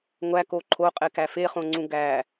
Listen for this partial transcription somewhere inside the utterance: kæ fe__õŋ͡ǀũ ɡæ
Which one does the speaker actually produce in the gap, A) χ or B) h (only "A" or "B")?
A